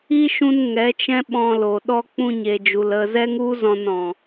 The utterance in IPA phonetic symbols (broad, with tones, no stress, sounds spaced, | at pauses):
i˦ ʃ ũ˧ n ŋ ɛ˨˦ t͡ʃ ɛ̃˦ ɓ ɔ̃˧ l o˨ ɗ ɔ˧ k͡p ũ˧ ɲ e˨ d͡ʒ u˨ l ə˧ z ɛ˦ ŋ u˦ z ɔ̃˧ n ɔ̃˧